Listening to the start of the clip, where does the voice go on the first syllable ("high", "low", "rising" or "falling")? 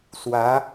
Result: rising